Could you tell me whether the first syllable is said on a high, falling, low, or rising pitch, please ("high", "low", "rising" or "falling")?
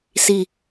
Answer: falling